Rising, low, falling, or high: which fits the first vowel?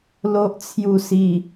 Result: low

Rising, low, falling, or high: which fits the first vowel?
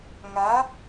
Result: rising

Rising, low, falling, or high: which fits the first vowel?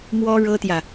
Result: high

